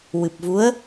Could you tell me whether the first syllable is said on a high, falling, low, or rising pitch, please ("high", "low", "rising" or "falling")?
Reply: low